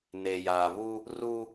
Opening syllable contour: low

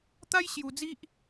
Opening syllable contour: high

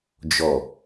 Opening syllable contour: low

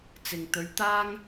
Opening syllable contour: low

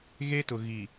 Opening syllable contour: high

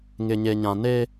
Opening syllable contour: low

